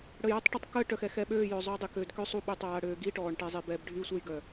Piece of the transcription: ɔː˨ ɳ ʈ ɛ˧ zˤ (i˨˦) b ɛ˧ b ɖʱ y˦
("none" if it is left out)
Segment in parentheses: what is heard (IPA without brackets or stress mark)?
i˨